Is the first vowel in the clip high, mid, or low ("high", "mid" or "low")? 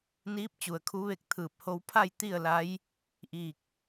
high